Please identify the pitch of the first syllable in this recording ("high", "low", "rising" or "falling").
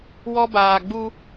high